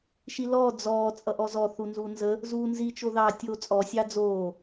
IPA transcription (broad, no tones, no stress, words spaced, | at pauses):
ʃilɔː d͡zɔː t͡sʼʌʔɔzɔ θunzunzə | zuːnzi t͡ʃoðɑ tʲoːt͡sʼɔ sʲɑːd͡zoː